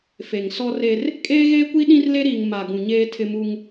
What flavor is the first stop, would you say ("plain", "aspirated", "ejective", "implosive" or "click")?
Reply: ejective